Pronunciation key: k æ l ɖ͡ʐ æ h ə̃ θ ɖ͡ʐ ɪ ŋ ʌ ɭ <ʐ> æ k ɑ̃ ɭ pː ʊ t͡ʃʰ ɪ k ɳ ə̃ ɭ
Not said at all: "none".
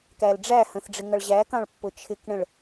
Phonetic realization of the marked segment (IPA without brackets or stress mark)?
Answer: ʑ